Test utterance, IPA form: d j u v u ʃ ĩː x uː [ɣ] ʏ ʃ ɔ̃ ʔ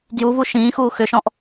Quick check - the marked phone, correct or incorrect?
incorrect